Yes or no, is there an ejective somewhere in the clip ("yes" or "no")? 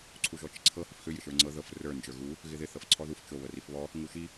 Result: no